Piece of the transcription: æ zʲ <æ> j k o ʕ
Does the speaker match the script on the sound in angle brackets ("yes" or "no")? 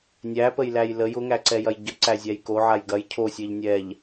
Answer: yes